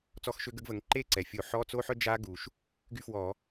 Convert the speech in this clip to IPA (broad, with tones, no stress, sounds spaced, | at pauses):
t͡s ɔ˦˥ x ʃ ø˦˥ ɡ ə˦˥ ɡ v ə˨˦ ŋ ǃ e˥˧ ǀ ɛ˩ fʲ o˧˩˧ ħ ɔ˧˥˧ t͡s o˥˧ ħ œ˥˧ d͡ʒ a˦˥ ɡ u˩ ʃ | ɡ y˥˧ f w ɔ˧˩˧